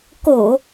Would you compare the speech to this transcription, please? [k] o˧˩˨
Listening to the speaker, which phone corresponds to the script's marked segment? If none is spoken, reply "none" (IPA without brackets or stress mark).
k